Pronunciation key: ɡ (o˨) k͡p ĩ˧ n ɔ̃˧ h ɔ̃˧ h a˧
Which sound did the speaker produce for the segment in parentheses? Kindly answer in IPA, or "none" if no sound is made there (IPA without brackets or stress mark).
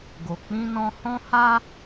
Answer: o˨